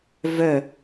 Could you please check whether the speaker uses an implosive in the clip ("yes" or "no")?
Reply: no